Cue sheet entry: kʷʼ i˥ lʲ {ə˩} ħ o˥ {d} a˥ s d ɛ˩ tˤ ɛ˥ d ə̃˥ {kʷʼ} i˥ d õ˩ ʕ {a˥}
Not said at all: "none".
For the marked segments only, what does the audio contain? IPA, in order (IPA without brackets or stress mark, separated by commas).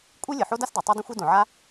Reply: ə˩, d, xʷ, a˥